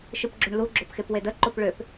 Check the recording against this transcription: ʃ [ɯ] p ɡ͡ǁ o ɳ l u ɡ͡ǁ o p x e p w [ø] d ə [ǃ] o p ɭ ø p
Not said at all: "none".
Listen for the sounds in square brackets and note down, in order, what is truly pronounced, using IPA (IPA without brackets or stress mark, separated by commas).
ɯ, e, ǃ